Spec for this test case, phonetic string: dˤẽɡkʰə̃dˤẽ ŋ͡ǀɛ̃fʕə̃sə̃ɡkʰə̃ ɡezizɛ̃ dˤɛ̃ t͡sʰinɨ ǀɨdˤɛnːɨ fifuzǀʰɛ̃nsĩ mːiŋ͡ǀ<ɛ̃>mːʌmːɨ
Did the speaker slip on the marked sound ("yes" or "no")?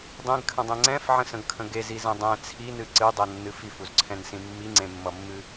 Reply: yes